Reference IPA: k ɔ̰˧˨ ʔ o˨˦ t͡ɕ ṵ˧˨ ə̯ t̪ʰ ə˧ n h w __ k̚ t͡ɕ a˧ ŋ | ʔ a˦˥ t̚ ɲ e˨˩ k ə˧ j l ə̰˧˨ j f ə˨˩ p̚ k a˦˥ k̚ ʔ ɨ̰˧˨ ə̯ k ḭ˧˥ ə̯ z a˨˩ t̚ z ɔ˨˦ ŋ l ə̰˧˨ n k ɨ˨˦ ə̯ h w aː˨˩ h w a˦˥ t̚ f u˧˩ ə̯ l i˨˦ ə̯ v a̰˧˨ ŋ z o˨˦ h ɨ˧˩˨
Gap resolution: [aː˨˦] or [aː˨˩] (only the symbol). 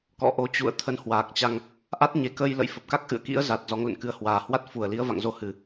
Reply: aː˨˩